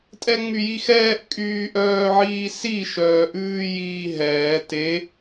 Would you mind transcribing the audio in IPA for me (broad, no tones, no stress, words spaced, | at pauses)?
tʼɛŋ͡myjixɛːʔ kʼyːʔœːʕiːsi ʃœːʔʉːjiːɦɛː te